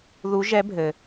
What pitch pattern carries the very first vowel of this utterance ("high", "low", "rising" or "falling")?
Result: rising